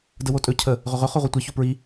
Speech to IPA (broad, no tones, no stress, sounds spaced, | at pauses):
d ə w o tʼ ɵ cʰ ə | ʁ ɵ ʁ ɵ χ o ʁʷ i tʷ e ç o p ɹ i